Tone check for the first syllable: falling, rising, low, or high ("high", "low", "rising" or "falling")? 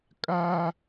high